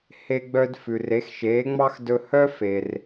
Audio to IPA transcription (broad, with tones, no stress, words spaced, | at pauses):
he˧ɡ͡bœ˧d fʉ˩re˩˥xʃeː˩˥ŋ͡mɑ˥x dɵ˧hœ˥ fe˩r